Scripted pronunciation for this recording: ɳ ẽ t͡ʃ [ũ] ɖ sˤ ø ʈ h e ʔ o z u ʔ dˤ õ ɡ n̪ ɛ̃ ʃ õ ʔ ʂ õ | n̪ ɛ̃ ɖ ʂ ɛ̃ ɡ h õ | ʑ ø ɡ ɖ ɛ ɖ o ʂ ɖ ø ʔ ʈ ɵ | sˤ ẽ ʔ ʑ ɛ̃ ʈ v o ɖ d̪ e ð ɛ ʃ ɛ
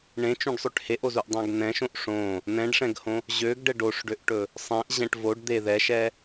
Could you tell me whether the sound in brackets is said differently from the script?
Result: no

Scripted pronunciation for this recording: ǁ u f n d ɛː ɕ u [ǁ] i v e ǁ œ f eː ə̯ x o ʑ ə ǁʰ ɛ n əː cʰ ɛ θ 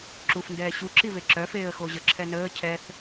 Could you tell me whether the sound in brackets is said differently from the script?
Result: no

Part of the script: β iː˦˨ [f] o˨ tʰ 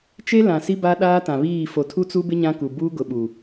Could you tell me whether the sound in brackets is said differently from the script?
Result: no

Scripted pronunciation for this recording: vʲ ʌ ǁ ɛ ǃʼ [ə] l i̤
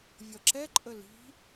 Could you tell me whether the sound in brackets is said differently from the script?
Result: no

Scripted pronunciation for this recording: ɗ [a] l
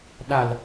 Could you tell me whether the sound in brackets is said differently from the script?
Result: no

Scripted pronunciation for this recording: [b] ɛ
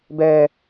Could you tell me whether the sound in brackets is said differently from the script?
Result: no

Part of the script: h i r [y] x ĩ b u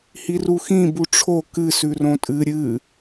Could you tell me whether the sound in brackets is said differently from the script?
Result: yes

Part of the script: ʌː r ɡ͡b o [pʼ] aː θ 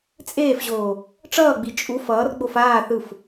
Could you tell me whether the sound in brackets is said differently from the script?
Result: yes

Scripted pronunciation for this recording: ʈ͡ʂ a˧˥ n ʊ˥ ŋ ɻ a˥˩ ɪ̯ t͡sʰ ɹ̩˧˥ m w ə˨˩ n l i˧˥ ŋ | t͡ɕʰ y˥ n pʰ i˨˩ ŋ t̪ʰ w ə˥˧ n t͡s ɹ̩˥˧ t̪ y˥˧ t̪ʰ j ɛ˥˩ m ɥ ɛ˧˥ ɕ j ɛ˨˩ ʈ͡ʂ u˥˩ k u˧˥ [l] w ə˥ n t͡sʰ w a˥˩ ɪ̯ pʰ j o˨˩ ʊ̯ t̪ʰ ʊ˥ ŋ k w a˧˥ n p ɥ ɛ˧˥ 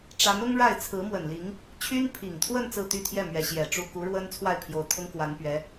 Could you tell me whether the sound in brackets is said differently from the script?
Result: yes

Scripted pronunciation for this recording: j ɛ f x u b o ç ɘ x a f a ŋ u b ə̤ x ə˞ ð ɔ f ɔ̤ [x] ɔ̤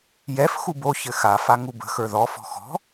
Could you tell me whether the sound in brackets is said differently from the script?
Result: no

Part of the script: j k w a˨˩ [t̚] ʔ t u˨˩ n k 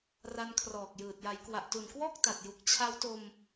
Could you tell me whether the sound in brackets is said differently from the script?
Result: yes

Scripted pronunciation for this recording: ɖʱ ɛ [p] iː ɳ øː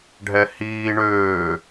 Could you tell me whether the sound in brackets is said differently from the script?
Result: yes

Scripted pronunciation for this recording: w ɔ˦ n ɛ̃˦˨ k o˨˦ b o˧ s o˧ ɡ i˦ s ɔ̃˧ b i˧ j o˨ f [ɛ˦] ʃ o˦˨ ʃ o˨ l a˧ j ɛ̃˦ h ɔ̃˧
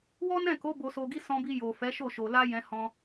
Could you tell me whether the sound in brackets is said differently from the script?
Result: yes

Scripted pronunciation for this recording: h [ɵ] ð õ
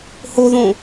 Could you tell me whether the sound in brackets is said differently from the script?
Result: yes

